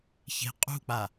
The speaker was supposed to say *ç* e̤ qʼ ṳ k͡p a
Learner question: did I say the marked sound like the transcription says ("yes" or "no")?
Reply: yes